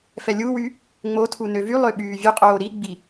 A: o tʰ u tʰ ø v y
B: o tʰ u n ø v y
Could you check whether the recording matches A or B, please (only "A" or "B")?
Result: B